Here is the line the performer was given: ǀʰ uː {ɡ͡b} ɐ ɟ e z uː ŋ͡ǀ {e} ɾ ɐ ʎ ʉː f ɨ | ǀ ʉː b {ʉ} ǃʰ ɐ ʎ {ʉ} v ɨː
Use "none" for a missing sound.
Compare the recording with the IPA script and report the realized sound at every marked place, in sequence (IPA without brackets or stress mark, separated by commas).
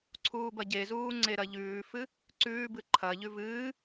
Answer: b, e, ɨ, ʉ